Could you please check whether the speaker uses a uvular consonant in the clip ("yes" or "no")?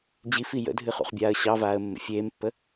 yes